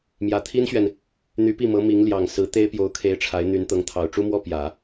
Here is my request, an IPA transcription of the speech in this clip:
m j ä˨˩ t̪ʰ i˥ n ɕ ɥ ɛ˨ n | n̪ y˧˥ p i˥˩ m ɤ˧˥ m i˧˥ ŋ l j ɑ˨˩ ŋ s ɹ̩˧˥ t̪ e˥ ɪ̯ p j o˧˥ ʊ̯ kʰ e˧˥ ɪ̯ ʈ͡ʂʰ a˧˥ ɪ̯ n̪ y˧˥ n t̪ ɤ˧˥ ŋ t̪ʰ ɑ˨˩ ʊ̯ ʈ͡ʂ u˥ m w ɔ˥ p j ä˨˩˦

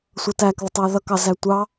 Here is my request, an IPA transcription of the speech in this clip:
sʷ ʌ t æ k ð ə tˤ æ ð ʌ k ɑ z æ tʷ ɑ

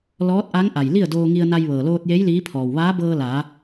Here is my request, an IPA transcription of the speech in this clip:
l ɔː˧˥ t̚ ʔ a˧˥ ŋ ʔ a˩ j l i˥˨ ə̯ d oː˧ ŋ i˧ ə̯ n a˧ j ʋ ɤː˩ l oː˧ t̚ j e˧˥ j l iː˧˥ pʰ ɔː˩ w ʋ aː˧˥ b ɤː˧ l aː˩˧

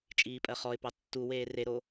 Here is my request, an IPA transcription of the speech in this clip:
t͡ʃʼ iː pʼ ɜ χ ɔ ɪ̯ p ɑ tː u w eː r e ɾ o

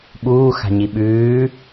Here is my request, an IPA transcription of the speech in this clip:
ɓ uː x a̤ ɲ i ɓ ʉː

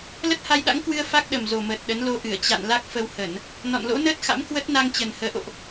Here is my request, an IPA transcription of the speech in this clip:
l ə˦˥ t̚ h a˧ j ɗ a̰˧˥ ŋ k w ɨ˧ ə̯ f a˦˥ k̚ ɗ ə˨˩ m z o˨˩ m əː˨˩ t̚ ɗ ə˨˦ n l o˧ ʔ ɨ˧˩ ə̯ t͡ɕ a̰˧˨ n l a˦˥ k̚ f ə˧ w h ə˧˩˨ n | n ɔ̰˧˨ n l o̰˧˥ n əː˦˥ t̚ x a̰˧˥ m k w ə˦˥ t̚ n a˧ ŋ t͡ɕ ə˨˩ n h əː˨˦ ʔ o̰˧˨ ʔ

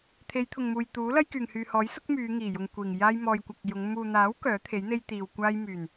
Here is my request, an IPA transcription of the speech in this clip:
t̪ʰ e˨˧ j t̪ʰ ʊ˨ ŋ m uː˨ j t̪ uː˨˥ l ɐ˥ j k yː˨ ŋ h yː˨ h ɔː˨˥ j s ʊ˥ k̚ m yː˨˧ ŋ iː˨˩ j ʊ˨ ŋ kʷ iː˨˩ ŋ j aː˥ j m ɔː˧ j kʷ ɐ˧ k̚ j ʊ˨˧ ŋ m uː˨ n̪ aː˨˥ w k œː˨˥ t̪ʰ e˨˥ j n̪ e˥ j t̪ iː˧ w kʷ aː˥ j m yː˨˩ n

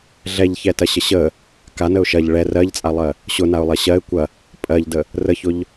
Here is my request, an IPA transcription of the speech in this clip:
ɮ ɛ ʎ ç ɛ t ɐ ɕ ə ɕ ə | k a n ə ʊ̯ ʃ ɐ ʎ ɭ ɛ r ɜ ʎ t͡sʼ a lˠ ɜ | ɕ ʊ n a ʊ̯ lˠ ɐ ɕ ɜ ɪ̯ kʷ ɐ | pʼ ɜ ʎ d ə | r ə ç ʊ ʎ

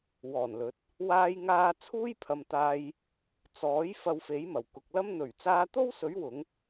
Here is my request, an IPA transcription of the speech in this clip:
w ɔː˨˩ n l ɵ˨˥ t̚ | w aː˧ j ŋ aː˧ t͡sʰ uː˥ j pʰ ɐ˨ m t̪ aː˧ j | t͡s ɔː˨˥ j f ɐ˧ w f e˨˥ j m ɐ˨˩ w k ʊ˨ k̚ l ɐ˥ m n̪ ɵ˨˩ ɥ t͡s aː˧ t̪ o˥ w s ɵ˨˥ ɥ w ʊ˨˥ ŋ

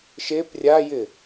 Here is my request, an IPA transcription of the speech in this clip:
ʃ e p rʲ a j ɪ

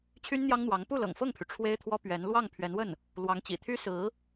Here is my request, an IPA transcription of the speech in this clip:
t͡ɕʰ y˥ n n̪ j ɑ˥ ŋ n̪ w ɑ˧˥ ŋ p u˥˩ l ɤ̰˨˩ ŋ f ɤ˥˩ ŋ pʰ y˩ ʈ͡ʂʰ w e˥ ɪ̯ t̪ʰ w ɔ˥ p ɥ ɛ˧˥ n l w ɑ˥˩ ŋ pʰ ɥ ɛ˧˥ n w ə˥˩ n | l w ɑ˧˥ ŋ t͡ɕ ḭ˨˩ t̪ʰ y˥ s ɹ̩˧˥

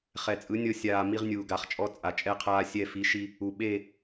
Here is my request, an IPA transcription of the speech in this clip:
χ ɛ˨ t͡sʼ ɯ˨˦ nʲ ɤ˦ sʲ aː˨ m i˦ ʁ nʲ uː˨ ɡ a˨ χ t͡ʃʼ ɔ˦ t͡sʼ a˨ t͡ʃʼ ɛ˦ qʰ aː˦ sʲ ɛ˦˨ f i˨˦ ʃ i˦ | u˨ ɓ e˦˨

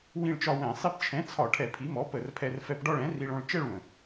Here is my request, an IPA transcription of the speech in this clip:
w ĩ˥˧ ɭ t͡ʃ ɒ˥˧ w ɛ̃˧˩˧ sˤ i˧ p t͡ʃʰ ɛ̃˩˥ t͡sʰ ɒ˧˩˧ ʈʰ ɛ˧˩˧ pʰ i˩˥ m ɔ˩˥ p ə˧˩˧ r pʰ ɛ˧ r f ɛ˧ p ɖ ɒ˥˧ ɭ ɛ̃˩˥ r i˧ ɭ ɔ̃˧ ɭ t͡ʃ ɛ˥˧ ɭ w ə̃˩

